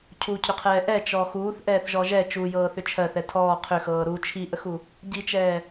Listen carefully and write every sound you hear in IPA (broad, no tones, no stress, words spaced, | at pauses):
cʰucʰʏqʰɛː ʔɛt͡ʃɔ xuːθʔɛːθʒɔ ʒɛ t͡ʃujɤːθʏ t͡ʃʰɜθɛ tʰɔː qʰʏxɤː ɾu t͡ʃʰiʔəxu | ɟit͡ʃɛː